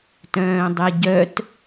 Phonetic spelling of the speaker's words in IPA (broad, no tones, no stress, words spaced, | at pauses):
tœ̃ːdˤɛɟœt